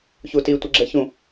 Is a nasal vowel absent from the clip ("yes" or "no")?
no